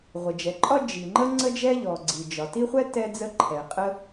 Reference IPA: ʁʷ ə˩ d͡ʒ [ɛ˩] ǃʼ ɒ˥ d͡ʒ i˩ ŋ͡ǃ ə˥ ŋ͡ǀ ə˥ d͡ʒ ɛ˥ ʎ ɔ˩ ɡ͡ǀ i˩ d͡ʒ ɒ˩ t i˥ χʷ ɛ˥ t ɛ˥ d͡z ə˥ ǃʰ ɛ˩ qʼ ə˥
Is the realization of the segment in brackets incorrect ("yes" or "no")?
no